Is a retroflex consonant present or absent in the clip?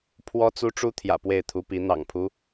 present